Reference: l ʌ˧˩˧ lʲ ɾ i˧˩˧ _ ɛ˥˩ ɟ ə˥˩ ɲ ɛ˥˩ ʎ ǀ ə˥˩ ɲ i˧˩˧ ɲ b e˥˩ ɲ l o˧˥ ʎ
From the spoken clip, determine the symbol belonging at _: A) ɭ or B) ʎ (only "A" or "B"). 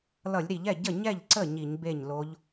B